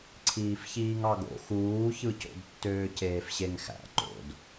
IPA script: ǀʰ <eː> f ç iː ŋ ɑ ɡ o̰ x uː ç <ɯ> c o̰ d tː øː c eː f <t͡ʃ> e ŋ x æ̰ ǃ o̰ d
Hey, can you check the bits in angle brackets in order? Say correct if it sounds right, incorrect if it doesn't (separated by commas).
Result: incorrect, correct, incorrect